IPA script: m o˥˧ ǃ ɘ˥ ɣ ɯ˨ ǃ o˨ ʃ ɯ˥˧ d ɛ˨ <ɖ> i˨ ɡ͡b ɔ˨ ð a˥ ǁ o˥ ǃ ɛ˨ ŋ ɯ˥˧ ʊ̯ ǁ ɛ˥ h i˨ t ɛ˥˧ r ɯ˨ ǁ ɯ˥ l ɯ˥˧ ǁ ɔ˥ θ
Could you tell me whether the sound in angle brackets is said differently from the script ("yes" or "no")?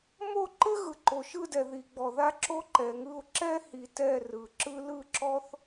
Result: yes